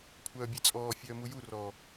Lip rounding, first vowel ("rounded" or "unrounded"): rounded